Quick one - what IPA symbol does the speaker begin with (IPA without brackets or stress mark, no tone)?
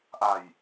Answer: ʔ